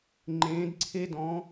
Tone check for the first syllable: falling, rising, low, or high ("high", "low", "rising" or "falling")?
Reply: rising